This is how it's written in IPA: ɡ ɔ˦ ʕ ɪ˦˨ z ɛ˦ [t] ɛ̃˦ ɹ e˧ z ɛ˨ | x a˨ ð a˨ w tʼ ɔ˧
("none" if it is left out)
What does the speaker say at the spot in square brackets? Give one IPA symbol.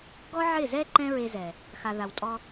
ǃ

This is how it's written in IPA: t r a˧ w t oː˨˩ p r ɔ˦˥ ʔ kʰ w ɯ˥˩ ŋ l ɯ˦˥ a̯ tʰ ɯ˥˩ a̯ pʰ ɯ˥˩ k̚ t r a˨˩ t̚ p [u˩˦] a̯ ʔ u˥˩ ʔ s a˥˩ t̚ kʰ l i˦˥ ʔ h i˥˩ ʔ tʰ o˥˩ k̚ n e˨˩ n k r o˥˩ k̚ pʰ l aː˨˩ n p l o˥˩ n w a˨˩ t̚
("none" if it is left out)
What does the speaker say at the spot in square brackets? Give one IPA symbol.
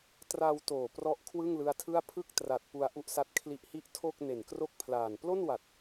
u˧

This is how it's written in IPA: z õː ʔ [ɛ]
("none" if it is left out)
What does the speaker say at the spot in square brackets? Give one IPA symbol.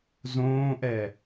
ɛ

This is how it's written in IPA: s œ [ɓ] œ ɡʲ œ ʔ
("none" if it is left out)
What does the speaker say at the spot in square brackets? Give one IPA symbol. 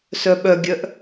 ɓ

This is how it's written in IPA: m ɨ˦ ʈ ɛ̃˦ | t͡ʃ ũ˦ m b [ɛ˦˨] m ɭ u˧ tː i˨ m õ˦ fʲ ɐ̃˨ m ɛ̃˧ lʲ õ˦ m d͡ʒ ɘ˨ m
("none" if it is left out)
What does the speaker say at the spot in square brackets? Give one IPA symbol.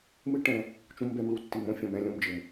ɛ˦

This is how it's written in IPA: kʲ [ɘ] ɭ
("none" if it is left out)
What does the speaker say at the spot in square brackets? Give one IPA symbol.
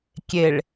e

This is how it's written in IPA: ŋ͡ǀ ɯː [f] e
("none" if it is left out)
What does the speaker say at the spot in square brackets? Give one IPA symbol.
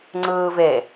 v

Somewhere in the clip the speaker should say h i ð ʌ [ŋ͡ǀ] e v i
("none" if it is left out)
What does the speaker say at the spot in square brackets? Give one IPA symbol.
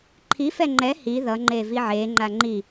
ŋ͡ǃ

